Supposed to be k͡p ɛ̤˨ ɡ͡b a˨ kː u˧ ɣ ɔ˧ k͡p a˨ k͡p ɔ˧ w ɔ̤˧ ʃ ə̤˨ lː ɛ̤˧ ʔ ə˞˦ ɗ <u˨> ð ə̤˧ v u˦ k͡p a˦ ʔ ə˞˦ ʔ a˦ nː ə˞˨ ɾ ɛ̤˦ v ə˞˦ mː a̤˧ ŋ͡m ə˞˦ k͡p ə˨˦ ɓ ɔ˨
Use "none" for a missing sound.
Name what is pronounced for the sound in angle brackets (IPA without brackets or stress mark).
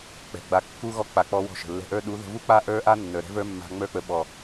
u˨˦